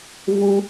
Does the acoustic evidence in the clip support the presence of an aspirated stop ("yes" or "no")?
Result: no